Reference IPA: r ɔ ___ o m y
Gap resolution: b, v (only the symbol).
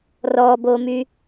b